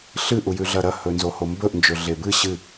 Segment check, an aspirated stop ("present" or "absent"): absent